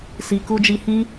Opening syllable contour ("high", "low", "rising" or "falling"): low